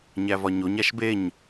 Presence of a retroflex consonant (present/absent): absent